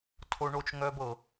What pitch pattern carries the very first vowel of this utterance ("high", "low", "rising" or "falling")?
high